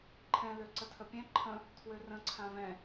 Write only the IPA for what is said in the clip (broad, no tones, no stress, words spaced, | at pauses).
ǃʰɛ̃ løǀətʰəpʲɛ̃ ǃʰə̃ | tʰwørə̃ ǀʰãvɛ̃